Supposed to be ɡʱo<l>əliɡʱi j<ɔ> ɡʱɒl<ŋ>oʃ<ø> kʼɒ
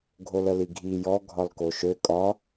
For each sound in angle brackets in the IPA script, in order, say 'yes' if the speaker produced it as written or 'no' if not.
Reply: yes, yes, no, yes

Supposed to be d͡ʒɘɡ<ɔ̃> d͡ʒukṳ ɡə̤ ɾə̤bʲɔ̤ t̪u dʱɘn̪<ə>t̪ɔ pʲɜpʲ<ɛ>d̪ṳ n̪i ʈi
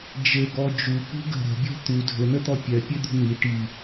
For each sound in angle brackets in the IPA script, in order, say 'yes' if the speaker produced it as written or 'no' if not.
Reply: no, yes, no

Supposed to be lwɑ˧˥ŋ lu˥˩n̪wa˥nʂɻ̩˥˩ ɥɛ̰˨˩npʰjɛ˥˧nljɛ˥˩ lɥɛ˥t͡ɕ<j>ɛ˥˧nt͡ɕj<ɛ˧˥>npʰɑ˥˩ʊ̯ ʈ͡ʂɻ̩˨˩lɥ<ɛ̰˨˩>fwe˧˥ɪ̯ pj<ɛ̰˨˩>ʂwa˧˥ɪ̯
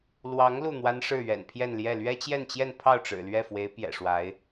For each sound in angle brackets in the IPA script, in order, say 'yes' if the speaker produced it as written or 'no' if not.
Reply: yes, no, no, yes

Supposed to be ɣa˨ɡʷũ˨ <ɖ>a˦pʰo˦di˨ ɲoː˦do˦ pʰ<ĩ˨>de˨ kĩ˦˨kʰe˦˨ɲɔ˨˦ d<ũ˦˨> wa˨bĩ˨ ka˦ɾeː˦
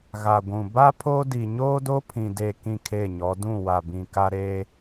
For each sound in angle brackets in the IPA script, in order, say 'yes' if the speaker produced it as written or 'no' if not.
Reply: no, yes, yes

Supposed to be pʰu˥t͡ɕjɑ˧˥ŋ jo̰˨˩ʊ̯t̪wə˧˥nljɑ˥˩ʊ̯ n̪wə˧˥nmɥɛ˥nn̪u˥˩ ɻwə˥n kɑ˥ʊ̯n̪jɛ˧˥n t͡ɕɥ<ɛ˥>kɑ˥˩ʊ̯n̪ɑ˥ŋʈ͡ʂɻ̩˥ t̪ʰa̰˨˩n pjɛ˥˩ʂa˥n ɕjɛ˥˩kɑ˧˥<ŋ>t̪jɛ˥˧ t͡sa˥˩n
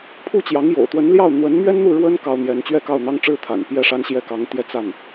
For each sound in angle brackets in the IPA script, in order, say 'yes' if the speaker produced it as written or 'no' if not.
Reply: no, yes

